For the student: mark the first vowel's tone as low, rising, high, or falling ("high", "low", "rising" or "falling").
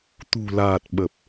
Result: low